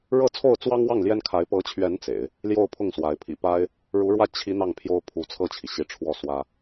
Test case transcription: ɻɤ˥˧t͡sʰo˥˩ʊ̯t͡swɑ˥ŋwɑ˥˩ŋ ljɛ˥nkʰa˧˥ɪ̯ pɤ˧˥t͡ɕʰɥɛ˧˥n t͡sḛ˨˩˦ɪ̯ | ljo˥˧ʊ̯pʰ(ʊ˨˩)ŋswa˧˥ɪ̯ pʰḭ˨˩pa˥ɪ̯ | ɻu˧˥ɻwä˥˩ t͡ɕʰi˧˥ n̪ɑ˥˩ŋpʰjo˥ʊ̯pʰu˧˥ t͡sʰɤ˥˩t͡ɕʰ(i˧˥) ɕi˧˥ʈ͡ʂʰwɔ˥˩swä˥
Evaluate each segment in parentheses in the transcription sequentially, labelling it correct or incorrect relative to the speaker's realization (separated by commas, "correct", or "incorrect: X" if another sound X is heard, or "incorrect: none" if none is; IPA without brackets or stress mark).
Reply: incorrect: ʊ˥˩, incorrect: i˩